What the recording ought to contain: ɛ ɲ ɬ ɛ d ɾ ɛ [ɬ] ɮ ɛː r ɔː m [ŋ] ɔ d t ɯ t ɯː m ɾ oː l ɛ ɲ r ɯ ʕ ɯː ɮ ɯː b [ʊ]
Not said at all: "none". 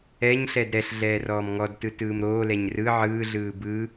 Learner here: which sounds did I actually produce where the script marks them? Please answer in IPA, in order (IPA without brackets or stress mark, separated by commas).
ɬ, ŋ, ɯ